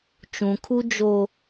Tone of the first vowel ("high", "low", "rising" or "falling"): low